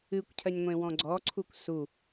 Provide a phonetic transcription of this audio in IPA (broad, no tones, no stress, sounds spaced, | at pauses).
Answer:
ɨ kʷ cʰ ɜ ɲ ŋʷ ẽ w ɔ̃ ɡ͡ǀ ɔ ǀʰ u kʷ s u